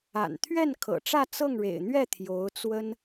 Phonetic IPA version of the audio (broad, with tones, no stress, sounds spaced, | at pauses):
a̰˨˩ n t̪ʰ ɥ ɛ˥˩ n kʰ ɤ̰˨˩ ʈ͡ʂ ä˥˧ t͡s ɤ˥˩ ŋ ɻ ḛ˨˩ ɪ̯ n̪ ɥ ɛ˥˩ t̪ʰ j o˧˥ ʊ̯ t͡s w ə˥ n